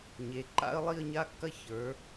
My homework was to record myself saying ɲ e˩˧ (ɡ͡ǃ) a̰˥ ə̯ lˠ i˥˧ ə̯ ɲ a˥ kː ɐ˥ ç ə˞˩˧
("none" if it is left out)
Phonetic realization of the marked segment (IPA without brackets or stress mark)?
ǃ